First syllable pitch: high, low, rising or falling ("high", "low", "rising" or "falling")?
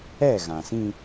falling